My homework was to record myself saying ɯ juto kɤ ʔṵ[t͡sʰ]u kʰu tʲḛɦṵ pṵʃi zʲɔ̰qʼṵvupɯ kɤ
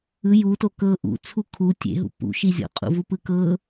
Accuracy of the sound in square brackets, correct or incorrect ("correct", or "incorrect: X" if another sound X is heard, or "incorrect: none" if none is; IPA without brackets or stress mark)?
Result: correct